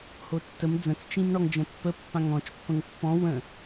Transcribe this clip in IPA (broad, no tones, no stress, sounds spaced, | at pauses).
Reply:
h o tː ə m d͡z ə̃ t͡s t͡ʃ ĩ m ɳ ɔ ŋ d͡ʒ ə̃ pː ə pː ã ŋ ɔ̃ t͡ʃ pː ə̃ ŋ pː ɔ̃ w ə̃